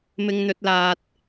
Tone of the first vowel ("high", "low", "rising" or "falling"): high